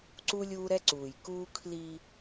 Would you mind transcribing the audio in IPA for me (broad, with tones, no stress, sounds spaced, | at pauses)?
ǀ u˦ lʲ uː˦ ɾ ɛ˦ ǀ uː˨ j k uː˦ kʰ l i˦